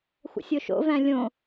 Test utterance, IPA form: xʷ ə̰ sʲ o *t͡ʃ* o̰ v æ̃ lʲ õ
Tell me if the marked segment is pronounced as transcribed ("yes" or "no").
no